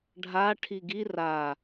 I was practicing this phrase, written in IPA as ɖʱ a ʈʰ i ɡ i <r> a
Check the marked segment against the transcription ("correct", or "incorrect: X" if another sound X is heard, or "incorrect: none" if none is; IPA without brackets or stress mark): correct